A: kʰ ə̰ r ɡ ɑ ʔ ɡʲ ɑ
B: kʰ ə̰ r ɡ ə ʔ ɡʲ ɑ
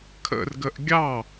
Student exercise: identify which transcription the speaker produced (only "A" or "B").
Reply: B